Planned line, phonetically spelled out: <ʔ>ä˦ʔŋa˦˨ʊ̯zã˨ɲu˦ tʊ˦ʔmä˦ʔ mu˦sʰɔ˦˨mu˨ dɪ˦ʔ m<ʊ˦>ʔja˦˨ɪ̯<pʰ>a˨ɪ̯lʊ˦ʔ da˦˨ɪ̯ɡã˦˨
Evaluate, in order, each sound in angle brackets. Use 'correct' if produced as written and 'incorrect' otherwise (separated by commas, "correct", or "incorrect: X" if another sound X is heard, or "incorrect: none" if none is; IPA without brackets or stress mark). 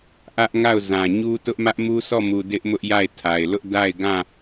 correct, correct, incorrect: tʰ